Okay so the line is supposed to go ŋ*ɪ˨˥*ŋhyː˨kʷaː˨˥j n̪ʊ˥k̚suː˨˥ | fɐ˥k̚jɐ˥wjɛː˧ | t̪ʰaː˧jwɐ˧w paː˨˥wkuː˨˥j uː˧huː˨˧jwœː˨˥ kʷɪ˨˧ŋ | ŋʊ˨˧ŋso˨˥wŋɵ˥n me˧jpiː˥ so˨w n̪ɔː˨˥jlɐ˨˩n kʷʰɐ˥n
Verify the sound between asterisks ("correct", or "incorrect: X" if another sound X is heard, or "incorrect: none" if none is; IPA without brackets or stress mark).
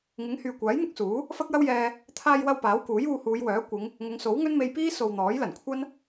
correct